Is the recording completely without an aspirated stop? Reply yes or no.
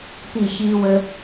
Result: yes